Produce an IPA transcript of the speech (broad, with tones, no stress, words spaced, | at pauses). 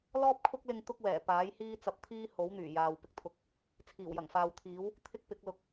lɔː˥p̚kʰʊ˥k̚lɪ˧ŋ t̪ʊ˥k̚wɛː˨˩ paː˨˥jhiː˥ t͡sɐ˧p̚t̪ʰiː˥ ho˨˥wn̪yː˨˩ jaː˨w pɪ˨k̚t̪ʰʊ˨˥k̚ | t͡sʰiː˨˩wjɐ˨˩ŋfaː˨wt̪ʰiː˨˥w | t̪ʰɪ˥k̚pɪ˨˥k̚lʊ˨k̚